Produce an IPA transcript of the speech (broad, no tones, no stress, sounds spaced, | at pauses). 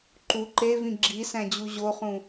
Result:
ǃ u ǃ e v ĩ ɡ͡ǁ i s æ̃ d͡ʑ u ʑ o χ ũ